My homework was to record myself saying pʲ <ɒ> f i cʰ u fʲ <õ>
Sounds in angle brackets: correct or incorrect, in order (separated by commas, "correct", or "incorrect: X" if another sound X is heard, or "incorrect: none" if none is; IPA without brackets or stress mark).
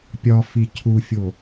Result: correct, incorrect: o